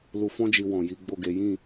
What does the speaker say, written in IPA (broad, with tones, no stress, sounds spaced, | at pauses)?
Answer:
l u˨ f ɔ̃˧ d͡ʒ i˨ w ɔ̃˨ j i˨˦ ɡ͡b o˦˨ ɡ e˨˦ j ĩ˦˨